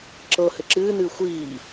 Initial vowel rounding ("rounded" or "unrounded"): unrounded